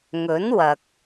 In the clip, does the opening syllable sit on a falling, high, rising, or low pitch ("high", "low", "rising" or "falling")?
rising